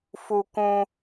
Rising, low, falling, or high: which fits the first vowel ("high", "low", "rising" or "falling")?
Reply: high